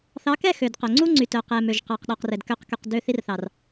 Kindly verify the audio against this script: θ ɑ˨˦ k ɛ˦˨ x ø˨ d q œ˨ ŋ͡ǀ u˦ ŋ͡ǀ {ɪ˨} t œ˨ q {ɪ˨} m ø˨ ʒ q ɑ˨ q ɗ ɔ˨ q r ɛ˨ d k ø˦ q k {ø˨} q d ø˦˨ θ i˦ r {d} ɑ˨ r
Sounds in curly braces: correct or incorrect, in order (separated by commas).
incorrect, incorrect, incorrect, incorrect